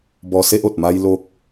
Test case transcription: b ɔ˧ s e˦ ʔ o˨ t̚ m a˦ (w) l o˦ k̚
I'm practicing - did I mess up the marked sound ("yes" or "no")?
yes